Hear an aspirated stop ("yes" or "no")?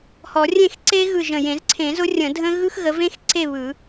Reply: yes